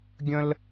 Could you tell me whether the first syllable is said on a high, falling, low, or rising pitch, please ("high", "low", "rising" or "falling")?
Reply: high